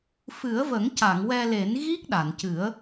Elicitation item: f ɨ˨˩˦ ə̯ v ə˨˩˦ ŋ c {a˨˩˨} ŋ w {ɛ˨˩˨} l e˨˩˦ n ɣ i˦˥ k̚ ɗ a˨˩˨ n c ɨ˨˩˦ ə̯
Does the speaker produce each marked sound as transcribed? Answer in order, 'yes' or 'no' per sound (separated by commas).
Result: yes, no